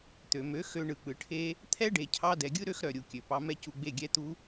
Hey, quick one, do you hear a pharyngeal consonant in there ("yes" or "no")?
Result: no